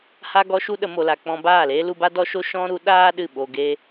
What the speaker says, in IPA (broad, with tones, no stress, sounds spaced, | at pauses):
h a˦ ɡ ɔ˦ ʃ u˦ ɗ ə˨˦ m o˧ l a˧ k͡p ɔ̃˧ b aː˦˨ l eː˦ l u˧ b a˦ d ɔ˦ ʃ o˦ ʃ ɔ̃˦ ɾ u˨˦ ɗ aː˦ ɗ ɨ˦˨ ɓ o˧ ɡ eː˦